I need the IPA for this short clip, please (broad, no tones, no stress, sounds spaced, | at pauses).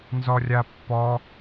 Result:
n z ɔ rʲ a pː ɔ